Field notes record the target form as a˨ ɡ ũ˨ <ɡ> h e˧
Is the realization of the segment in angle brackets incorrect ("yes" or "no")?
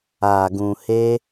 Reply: yes